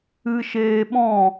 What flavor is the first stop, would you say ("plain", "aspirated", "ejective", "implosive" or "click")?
implosive